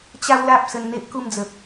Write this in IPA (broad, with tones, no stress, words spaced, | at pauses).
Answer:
t͡ɕa˦wla˦p̚ sə˧nn̪e˦ʔku˥˧md͡zə˨p̚